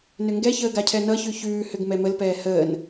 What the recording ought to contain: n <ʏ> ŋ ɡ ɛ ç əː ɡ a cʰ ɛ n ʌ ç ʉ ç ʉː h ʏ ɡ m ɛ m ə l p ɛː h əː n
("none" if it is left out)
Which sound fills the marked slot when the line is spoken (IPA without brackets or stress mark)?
ʏ